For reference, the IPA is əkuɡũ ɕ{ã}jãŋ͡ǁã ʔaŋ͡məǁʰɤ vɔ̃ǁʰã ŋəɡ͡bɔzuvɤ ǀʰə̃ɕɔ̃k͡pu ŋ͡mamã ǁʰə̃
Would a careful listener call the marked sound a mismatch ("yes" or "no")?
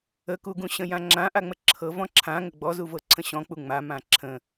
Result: yes